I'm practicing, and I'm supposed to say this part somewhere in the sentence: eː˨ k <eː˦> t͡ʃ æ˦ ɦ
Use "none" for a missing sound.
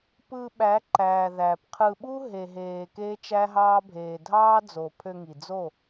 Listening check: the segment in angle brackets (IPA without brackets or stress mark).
eː˦